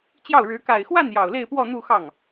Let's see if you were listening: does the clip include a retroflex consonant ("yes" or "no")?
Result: yes